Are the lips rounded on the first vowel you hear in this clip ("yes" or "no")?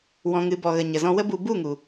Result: yes